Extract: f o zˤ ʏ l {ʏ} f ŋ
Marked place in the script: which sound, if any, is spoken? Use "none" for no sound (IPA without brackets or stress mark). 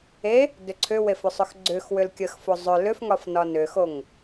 ʏ